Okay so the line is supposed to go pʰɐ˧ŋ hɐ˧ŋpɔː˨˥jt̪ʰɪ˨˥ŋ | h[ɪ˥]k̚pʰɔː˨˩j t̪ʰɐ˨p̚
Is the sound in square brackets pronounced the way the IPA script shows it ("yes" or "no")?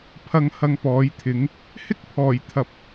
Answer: yes